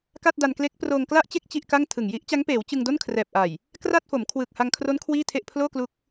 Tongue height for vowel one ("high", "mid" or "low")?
low